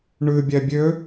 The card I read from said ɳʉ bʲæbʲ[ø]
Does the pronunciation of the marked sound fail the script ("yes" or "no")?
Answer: no